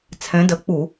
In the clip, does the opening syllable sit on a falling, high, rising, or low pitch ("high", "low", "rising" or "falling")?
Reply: rising